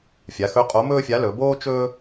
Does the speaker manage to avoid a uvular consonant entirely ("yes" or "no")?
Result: no